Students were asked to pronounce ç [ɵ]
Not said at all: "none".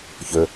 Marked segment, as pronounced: ɵ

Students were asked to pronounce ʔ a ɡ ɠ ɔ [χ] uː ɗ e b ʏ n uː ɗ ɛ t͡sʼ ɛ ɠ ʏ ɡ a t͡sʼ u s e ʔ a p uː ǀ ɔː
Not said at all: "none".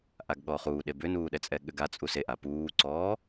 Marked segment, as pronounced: χ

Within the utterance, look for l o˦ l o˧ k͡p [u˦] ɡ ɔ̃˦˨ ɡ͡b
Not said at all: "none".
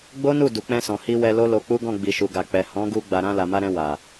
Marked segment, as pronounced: u˦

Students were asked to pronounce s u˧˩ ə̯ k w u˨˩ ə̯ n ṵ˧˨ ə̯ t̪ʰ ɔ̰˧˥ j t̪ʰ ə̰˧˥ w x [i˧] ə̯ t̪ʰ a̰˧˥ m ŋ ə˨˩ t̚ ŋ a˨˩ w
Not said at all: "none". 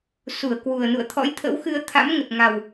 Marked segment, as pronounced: ɨ˧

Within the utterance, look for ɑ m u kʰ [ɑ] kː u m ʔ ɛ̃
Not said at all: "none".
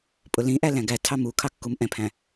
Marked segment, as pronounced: ɑ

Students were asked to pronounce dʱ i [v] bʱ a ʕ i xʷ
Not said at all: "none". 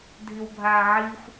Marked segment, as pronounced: w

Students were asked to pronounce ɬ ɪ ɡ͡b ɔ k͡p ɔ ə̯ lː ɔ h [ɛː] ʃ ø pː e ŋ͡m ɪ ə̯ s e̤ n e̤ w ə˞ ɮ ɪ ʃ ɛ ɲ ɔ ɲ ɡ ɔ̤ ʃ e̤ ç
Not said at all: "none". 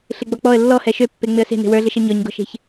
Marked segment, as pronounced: ɛ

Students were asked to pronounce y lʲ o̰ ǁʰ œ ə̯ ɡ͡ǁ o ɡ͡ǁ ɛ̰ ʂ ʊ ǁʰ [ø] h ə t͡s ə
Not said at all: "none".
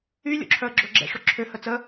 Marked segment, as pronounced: ø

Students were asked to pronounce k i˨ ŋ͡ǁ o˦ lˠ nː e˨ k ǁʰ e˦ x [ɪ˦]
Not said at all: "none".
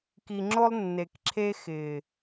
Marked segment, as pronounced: ɪ˨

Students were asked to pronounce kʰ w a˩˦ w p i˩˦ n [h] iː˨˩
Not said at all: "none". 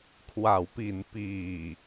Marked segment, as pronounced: p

